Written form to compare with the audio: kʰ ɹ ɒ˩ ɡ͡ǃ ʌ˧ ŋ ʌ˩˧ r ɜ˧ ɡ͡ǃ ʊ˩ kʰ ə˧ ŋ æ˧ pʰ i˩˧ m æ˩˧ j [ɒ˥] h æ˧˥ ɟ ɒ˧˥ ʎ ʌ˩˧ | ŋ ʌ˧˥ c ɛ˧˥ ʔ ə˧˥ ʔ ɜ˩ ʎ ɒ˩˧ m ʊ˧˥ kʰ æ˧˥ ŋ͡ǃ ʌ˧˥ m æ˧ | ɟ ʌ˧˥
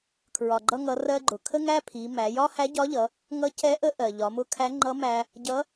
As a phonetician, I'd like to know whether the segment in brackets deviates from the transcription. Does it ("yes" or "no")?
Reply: no